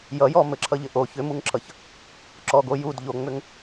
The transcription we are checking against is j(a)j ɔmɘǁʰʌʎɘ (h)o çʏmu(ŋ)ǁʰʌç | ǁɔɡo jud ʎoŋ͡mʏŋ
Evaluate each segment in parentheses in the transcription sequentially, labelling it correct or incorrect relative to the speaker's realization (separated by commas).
incorrect, incorrect, correct